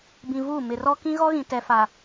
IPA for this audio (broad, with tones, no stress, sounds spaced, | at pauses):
b ĩ˨ v uː˦˨ m ɪ˨ r ɔ˦ k ĩ˦ ɣ ɔ˦ ɣ ĩ˨ t ɛ˨ f a˨